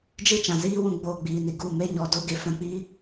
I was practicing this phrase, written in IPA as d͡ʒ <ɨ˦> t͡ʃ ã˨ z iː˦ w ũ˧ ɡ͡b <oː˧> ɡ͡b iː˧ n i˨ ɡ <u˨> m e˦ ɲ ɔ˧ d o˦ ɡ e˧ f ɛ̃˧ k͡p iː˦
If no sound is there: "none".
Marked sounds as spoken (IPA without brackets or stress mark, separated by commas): ɨ˦, oː˧, u˦˨